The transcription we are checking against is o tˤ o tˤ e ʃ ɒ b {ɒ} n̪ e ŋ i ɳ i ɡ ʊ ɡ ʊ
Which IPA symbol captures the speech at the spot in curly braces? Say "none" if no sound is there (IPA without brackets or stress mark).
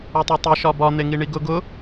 ɒ